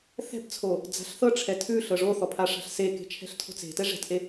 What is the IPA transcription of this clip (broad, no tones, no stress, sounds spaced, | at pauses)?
θ ɛ̤ b t͡sʰ o | d͡z a̤ ɬ θ ɤ ʈ͡ʂʰ ɛ tʰ ʉ ɬ ɤ ʐ o θ ɔ pʰ a ʂ a̤ ɬ s e k e̤ t͡ʃʰ ɛ̤ ɬ tʰ o̤ t͡s e̤ t ɛ ʐ ɛ̤ t ʔ e